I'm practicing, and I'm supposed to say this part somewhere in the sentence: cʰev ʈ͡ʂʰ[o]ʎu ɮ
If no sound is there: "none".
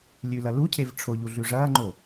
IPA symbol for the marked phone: o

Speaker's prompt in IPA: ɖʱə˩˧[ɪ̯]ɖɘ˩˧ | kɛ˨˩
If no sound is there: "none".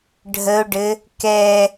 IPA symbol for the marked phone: ʊ̯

